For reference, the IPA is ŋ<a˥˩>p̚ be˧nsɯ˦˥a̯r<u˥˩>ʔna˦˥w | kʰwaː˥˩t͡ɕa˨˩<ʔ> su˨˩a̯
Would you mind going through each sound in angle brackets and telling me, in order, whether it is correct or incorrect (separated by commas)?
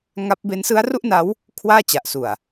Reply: incorrect, correct, correct